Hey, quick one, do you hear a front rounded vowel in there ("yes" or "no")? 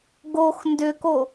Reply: yes